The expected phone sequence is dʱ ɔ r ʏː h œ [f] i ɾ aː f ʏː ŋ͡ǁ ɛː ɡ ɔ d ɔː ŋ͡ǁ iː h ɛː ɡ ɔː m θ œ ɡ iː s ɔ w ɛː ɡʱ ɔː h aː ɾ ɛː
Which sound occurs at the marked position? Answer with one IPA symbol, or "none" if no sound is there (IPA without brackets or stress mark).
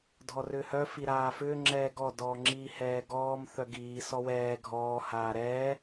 f